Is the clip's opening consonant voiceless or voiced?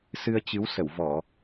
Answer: voiceless